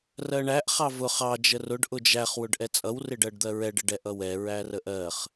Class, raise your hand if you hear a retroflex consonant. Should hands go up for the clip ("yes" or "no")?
yes